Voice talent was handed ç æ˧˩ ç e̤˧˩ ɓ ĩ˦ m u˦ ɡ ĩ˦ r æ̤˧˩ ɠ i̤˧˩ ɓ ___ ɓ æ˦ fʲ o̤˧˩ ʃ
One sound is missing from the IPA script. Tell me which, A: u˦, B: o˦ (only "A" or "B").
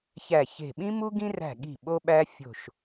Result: B